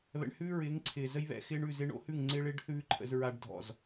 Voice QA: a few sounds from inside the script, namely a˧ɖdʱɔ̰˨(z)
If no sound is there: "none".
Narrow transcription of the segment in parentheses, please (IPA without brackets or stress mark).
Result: z